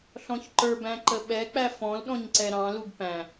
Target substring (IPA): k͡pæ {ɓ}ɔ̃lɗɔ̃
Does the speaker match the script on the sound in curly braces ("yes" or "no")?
no